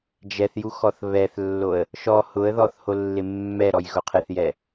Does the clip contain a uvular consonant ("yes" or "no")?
yes